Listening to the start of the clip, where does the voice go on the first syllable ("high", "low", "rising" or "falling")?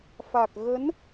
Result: low